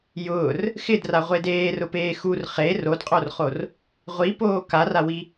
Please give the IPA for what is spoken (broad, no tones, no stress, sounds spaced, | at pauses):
j ʊː r | x ɪ d r a ʁʷ e d eː r ʊ p eː x u r χ e r o d qʼ o r χ o r | ʁʷ i p oː k a r a w i